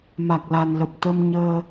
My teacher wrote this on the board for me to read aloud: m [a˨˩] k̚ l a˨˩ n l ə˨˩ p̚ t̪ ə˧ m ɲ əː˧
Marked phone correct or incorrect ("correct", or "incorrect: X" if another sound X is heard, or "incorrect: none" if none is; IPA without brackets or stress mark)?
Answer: correct